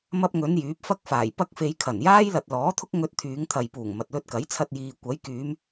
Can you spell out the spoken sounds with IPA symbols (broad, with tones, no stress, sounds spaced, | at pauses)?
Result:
m ɐ˧ p̚ ŋ ɵ˨˧ n j yː˨˥ p̚ f ɐ˥ k̚ f aː˨˩ j p ɐ˥ k̚ f e˧ j kʰ ɐ˨˩ n j aː˥ j l ɐ˨ t̚ l ɔː˨˥ t̪ʰ ʊ˥ k̚ ŋ ɵ˧ t̚ t̪ʰ yː˨˧ ŋ t̪ʰ ɐ˨ j p uː˨˩ ŋ m ɐ˨ t̚ l ɵ˧ t̚ k ɐ˨˥ j t͡sʰ ɐ˧ t̚ j iː˨ kʷ ɐ˨˥ j k yː˨˧ m